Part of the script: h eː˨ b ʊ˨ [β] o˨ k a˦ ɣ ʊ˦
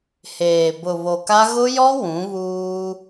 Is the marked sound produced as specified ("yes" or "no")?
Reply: yes